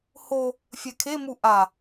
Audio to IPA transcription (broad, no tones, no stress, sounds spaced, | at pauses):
h o | fʲ ɛ kʰ e m u ʔ a